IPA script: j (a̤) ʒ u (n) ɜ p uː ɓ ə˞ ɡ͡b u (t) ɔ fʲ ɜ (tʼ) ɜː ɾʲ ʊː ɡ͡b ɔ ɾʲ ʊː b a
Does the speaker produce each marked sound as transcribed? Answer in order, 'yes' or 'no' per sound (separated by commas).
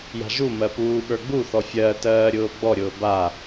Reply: yes, no, no, no